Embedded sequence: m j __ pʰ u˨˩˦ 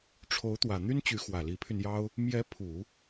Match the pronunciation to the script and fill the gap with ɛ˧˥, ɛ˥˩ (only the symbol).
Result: ɛ˧˥